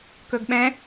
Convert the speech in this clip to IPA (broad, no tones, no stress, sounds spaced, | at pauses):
k ɵ ɡ ɓ ɛ̃